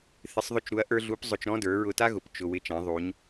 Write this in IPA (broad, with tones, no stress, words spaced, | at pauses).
θɪ˧˥sˤðˤʊ˥t͡ʃɾu˧˥ɐ̯ʔə˞˥ ɮu˧˥pzˤʊ˧t͡ʃɾɔ̃˥ də˞˩˧ɹʊ˧ta˥ɣʊ˩˧p t͡ʃʊ˩ wɪ˧t͡ʃã˩˧ ðˤu˩˧ɲ